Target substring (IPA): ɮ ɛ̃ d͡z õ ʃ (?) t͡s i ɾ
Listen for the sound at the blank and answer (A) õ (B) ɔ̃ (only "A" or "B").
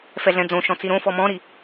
B